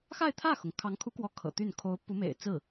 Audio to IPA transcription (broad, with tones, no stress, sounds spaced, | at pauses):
x a˥˧ ɪ̯ t̪ʰ ä˥˩ x ʊ˩ ŋ kʰ ɑ˧˥ ŋ kʰ u˧˥ k w ɔ˧˥ kʰ ɤ̰˨˩ t̪ y˥˩ n kʰ o˧˥ ʊ̯ p u˧˥ m ḛ˨˩ ɪ̯ t͡s ɹ̩˥˩